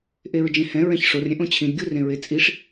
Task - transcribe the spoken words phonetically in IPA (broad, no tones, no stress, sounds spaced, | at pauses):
ʔ e ɹ d͡ʒ ẽ h ɛ̃ ɹ ɛ̃ ç ʂ o r ɾʲ ɛ̃ ʔ õ t͡ɕʰ ĩ d ɡʲ u r ẽ ɹ e t͡sʼ i ʂ